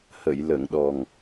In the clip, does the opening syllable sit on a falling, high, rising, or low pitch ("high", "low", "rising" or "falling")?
low